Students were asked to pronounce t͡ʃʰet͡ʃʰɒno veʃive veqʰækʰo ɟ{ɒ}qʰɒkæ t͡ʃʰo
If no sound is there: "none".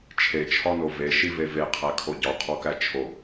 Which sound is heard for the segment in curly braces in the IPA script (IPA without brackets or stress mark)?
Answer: ɒ